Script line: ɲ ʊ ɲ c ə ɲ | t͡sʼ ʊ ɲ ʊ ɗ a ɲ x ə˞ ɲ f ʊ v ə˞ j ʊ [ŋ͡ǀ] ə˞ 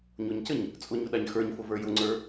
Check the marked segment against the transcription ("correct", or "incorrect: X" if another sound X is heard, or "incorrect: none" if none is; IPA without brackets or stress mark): correct